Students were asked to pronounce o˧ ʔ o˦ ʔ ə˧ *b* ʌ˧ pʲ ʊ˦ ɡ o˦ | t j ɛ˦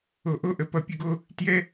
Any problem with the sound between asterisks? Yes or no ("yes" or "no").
yes